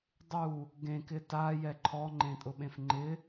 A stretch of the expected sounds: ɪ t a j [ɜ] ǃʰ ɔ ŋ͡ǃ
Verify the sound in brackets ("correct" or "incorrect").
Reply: incorrect